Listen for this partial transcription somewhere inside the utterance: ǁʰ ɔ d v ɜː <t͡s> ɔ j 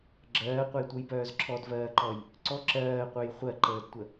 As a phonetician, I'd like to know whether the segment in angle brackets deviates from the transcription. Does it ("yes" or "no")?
yes